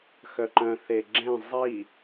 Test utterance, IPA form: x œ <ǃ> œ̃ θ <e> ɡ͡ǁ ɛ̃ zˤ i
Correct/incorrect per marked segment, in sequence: correct, correct

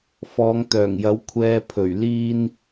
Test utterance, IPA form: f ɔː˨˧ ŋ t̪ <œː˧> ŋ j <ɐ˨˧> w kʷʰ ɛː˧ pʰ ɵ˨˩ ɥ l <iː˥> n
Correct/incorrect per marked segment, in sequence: incorrect: œː˨˩, incorrect: ɐ˨˥, correct

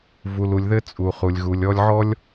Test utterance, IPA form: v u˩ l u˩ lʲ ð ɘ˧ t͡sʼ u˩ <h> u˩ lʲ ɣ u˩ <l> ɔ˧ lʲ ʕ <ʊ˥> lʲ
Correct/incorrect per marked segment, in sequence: incorrect: χ, incorrect: lʲ, incorrect: ɔ˥

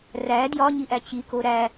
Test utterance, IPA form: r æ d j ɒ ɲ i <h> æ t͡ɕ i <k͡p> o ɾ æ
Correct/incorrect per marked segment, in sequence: incorrect: ʔ, incorrect: k

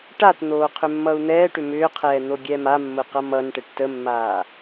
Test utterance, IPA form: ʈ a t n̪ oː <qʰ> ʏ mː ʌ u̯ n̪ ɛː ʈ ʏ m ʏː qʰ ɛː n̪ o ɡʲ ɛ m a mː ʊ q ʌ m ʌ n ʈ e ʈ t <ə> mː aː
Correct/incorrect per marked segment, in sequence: correct, correct

